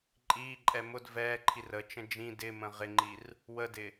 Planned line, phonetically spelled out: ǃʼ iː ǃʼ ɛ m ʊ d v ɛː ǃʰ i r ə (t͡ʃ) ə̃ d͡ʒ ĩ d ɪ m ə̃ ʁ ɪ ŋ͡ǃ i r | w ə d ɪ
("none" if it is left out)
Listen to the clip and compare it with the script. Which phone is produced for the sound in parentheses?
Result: t͡ʃ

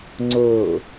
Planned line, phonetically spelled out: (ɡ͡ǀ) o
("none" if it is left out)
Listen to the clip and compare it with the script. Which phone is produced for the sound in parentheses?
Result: ŋ͡ǀ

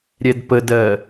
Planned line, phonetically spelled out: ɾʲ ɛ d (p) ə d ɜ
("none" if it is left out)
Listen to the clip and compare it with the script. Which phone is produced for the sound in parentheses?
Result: p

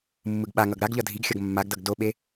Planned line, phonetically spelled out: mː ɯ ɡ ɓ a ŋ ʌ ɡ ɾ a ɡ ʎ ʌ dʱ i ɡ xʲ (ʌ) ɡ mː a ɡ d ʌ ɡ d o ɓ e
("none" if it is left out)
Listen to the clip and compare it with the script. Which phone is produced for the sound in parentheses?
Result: ʌ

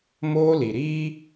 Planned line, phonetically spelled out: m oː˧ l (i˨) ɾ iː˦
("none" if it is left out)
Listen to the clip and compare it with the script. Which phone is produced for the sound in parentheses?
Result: i˨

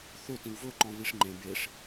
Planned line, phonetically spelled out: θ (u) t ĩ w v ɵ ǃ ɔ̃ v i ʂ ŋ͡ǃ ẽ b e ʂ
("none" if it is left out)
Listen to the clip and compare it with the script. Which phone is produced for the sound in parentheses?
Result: ø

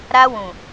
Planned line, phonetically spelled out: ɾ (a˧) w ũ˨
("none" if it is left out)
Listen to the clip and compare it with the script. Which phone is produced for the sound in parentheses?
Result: a˧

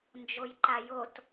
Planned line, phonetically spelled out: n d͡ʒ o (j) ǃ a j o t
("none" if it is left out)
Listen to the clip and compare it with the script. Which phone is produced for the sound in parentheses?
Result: j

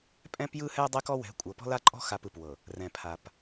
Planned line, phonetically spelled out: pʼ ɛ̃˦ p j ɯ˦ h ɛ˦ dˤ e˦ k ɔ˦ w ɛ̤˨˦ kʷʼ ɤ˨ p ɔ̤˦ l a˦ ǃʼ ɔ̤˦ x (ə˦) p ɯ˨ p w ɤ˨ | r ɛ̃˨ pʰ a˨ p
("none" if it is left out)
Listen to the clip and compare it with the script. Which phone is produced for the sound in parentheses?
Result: a˦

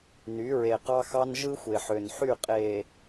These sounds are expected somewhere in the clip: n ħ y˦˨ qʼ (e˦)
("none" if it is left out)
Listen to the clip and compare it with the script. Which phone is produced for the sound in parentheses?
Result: e˨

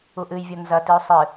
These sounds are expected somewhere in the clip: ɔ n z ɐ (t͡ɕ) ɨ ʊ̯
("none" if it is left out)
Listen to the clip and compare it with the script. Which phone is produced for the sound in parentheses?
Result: t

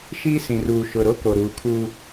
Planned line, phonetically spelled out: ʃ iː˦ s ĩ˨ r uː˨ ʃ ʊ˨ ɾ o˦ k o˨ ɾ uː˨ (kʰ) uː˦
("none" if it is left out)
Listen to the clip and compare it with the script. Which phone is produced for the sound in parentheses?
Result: kʰ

